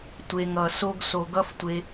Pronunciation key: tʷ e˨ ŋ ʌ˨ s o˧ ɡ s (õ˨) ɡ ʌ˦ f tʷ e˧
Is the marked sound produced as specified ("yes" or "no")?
no